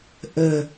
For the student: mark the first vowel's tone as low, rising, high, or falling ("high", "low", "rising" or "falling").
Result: low